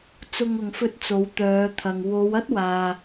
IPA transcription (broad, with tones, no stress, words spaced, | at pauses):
t͡sʊ˧ŋʊ˨ŋfɵ˧t̚ t͡so˨˧wt̪œː˨˧t̪ʰɐ˨ŋ wo˨˧w ɐ˥t̚waː˨